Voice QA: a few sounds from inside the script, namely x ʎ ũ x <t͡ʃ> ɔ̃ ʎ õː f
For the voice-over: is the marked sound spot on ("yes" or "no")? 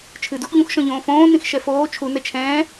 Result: no